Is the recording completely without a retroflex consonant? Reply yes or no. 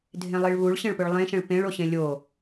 no